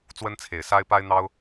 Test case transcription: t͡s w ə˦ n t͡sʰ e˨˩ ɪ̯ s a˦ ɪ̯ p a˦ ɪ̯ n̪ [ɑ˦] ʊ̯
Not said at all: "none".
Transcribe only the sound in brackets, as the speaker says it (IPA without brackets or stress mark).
ɑ˦